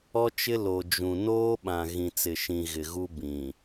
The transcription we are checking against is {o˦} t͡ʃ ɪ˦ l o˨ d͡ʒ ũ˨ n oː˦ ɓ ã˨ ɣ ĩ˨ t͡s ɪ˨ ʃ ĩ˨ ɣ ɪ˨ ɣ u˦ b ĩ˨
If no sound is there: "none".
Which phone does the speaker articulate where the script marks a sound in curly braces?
ɔ˦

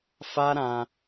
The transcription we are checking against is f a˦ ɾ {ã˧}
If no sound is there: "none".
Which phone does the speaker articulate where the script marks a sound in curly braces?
ã˧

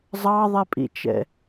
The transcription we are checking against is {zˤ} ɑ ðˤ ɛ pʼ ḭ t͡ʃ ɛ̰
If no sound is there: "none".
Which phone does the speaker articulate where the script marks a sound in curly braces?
zˤ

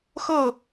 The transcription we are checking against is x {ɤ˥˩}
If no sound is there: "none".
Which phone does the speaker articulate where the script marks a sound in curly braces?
ɤ˥˩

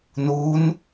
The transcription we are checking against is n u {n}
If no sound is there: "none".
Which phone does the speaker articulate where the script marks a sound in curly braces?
n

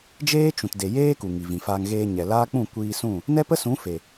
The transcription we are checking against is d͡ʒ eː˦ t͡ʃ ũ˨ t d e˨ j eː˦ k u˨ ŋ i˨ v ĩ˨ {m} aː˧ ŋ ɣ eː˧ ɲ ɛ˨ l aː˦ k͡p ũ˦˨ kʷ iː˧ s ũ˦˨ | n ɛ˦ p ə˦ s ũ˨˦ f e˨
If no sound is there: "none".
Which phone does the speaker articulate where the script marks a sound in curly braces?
f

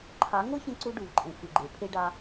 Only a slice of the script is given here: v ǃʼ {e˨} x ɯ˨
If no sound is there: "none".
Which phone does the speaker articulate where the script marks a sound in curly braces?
ẽ˨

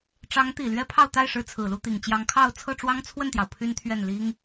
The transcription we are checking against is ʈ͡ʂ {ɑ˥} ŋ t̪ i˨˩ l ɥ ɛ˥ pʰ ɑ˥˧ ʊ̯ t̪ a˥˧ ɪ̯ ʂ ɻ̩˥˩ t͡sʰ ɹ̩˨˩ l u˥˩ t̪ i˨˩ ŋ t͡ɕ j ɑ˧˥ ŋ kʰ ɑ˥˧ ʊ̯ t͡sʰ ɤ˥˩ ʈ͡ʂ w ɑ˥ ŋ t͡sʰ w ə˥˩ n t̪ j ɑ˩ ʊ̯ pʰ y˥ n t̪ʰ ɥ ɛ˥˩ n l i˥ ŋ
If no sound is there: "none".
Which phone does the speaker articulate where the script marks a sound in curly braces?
ɑ˧˥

